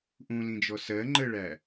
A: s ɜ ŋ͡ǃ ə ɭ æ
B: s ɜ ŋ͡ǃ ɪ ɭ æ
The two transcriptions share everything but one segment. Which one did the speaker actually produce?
A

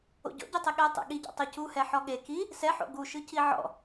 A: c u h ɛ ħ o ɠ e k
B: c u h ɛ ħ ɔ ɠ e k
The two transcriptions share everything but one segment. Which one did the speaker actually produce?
B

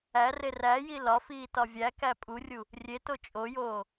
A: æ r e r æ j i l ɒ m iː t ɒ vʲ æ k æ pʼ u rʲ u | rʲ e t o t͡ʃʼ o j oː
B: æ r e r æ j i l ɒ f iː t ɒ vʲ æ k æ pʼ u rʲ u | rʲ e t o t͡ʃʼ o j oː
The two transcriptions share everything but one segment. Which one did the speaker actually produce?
B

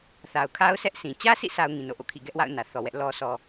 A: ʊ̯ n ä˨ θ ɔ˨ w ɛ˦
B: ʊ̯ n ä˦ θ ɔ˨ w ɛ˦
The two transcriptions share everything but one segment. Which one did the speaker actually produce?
A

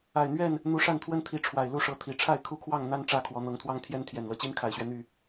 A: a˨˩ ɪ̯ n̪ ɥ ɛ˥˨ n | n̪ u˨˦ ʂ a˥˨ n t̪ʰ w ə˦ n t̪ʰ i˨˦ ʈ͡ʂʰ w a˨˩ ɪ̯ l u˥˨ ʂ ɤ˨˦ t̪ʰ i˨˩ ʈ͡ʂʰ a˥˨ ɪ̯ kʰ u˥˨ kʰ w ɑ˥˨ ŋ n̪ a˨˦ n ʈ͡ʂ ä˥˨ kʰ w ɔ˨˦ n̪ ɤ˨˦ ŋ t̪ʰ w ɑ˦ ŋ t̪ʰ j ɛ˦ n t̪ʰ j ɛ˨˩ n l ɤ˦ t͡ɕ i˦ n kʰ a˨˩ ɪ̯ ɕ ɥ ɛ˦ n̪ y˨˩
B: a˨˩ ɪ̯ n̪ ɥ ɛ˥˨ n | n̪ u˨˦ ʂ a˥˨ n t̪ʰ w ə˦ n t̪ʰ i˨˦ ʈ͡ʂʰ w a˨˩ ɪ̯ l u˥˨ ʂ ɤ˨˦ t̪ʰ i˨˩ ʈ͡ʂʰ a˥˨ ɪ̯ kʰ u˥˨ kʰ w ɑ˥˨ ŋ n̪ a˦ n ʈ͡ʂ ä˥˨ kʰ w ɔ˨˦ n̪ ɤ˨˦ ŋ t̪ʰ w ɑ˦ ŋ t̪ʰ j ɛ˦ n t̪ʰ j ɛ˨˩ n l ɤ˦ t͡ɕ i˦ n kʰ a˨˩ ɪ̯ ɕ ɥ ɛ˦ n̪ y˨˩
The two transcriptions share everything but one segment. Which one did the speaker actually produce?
B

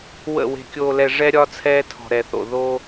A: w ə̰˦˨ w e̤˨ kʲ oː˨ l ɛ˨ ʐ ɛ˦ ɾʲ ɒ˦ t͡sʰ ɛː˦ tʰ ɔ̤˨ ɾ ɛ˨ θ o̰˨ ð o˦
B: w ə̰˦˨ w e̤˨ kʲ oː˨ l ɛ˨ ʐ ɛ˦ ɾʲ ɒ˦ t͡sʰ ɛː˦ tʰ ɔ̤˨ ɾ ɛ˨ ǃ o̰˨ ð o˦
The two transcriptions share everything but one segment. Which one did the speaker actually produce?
A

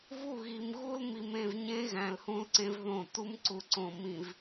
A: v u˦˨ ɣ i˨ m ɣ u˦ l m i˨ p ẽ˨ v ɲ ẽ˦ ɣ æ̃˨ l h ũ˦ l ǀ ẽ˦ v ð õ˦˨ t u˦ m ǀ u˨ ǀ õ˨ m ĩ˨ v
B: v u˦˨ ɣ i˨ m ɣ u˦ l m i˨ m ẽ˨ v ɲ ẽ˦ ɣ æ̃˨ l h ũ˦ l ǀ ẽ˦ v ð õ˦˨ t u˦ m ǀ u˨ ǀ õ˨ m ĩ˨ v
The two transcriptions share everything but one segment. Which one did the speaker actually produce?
B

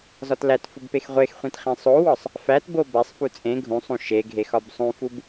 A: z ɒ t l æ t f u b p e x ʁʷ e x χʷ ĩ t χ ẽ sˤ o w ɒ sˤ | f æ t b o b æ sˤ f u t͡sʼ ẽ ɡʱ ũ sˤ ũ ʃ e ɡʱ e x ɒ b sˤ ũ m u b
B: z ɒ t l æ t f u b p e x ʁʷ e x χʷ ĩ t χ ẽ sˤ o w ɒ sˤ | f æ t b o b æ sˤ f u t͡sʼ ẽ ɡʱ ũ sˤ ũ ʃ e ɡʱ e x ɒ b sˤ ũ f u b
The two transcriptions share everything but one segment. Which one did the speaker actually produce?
B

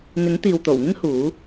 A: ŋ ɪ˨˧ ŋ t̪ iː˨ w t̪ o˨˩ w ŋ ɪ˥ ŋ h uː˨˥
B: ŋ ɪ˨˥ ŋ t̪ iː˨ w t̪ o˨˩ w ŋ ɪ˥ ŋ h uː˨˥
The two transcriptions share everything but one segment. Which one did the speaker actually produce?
B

